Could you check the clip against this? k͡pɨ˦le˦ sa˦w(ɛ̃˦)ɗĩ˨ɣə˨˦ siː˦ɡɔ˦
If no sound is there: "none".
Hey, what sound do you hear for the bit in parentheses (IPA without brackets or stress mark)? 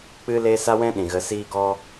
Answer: ɛ̃˦